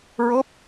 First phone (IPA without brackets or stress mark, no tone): ɹ